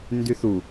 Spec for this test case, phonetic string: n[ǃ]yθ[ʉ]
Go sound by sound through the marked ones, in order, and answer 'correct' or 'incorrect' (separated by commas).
incorrect, incorrect